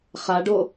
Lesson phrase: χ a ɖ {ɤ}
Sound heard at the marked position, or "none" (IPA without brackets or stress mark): o